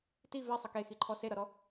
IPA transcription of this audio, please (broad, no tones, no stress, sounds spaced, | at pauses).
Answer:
t i v e sˤ ʌ k e x i ǃʰ ɔ s e ɾ ʌ ɾ ɔ